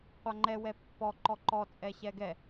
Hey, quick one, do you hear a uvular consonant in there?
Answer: yes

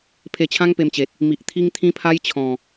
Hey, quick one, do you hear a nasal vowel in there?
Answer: yes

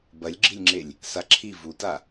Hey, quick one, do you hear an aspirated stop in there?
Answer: yes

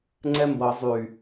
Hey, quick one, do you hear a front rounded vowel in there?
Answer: yes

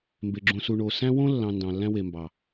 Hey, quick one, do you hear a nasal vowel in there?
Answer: yes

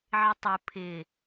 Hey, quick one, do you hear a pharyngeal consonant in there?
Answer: yes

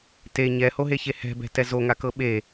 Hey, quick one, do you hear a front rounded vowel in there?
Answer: no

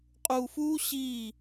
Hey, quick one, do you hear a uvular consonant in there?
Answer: yes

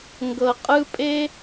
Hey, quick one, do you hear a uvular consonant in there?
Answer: yes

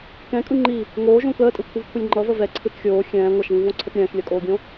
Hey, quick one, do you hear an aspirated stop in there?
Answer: yes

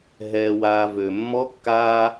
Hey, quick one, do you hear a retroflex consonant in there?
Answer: no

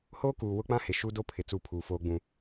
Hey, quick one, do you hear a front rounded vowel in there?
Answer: no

